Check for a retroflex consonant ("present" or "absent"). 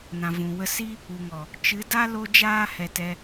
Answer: absent